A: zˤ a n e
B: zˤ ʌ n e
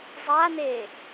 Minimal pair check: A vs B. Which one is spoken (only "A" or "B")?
A